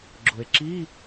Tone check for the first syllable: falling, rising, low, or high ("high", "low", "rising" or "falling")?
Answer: low